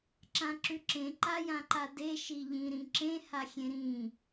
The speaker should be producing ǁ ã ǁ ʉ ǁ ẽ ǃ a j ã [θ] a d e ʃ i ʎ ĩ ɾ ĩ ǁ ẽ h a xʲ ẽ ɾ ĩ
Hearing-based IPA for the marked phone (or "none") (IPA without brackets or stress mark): ǃ